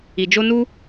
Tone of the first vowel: low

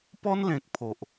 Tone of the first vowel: high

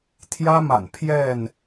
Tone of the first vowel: high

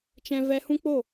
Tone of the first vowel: high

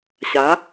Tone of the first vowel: rising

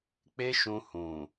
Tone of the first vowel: high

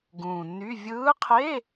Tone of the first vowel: low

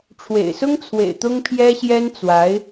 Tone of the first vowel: low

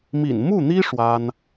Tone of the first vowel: low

